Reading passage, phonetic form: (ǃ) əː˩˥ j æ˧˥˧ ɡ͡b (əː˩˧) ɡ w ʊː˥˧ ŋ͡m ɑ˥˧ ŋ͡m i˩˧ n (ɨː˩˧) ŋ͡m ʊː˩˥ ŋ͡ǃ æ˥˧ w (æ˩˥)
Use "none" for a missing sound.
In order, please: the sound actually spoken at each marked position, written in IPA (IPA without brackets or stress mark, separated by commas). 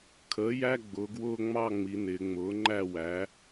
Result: kʰ, ʊː˩˧, ɪː˩˧, æ˩˥